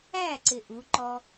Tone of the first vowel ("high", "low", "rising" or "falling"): falling